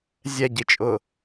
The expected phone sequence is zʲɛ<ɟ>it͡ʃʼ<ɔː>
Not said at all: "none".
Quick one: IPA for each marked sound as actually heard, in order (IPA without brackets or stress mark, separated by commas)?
ɟ, ʊː